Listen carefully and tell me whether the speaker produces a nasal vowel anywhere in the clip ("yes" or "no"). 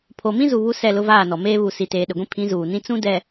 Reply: yes